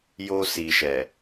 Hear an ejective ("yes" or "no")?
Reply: no